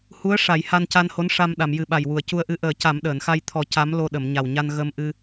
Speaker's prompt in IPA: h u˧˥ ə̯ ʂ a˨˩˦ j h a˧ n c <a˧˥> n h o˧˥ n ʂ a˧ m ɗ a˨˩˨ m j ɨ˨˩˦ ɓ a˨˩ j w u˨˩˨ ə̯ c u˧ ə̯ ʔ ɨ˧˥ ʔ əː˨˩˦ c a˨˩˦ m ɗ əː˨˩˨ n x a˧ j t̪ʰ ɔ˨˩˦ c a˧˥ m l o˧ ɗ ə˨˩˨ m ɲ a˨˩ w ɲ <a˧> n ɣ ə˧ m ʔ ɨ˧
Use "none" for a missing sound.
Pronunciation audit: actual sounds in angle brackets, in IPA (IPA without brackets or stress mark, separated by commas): a˧, a˧